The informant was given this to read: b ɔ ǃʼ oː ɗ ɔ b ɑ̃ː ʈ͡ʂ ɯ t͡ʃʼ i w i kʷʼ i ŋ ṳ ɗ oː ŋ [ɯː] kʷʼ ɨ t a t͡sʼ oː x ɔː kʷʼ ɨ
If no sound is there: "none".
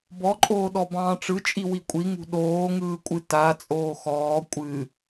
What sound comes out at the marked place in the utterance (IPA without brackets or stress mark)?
ɯː